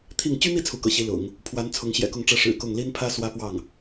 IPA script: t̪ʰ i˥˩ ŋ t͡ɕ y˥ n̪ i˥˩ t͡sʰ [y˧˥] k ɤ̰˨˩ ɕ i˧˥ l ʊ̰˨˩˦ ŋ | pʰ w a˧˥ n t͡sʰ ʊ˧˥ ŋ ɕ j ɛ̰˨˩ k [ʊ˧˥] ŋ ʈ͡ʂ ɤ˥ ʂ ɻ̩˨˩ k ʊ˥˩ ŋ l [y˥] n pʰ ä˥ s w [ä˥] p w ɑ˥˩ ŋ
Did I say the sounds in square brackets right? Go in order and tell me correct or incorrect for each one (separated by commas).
incorrect, incorrect, incorrect, correct